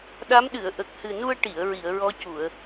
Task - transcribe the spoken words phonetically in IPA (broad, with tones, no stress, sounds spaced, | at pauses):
ɗ a˧˥ m ɗ ɨ˨˩˨ ə̯ ʔ ə˨˩ k̚ h ɨ˨˩ n u˧ ə̯ ʈ i˨˩˨ ə̯ ɹ i˨˩˨ ə̯ ɹ ɔ˧˥ c u˨˩˨ ə̯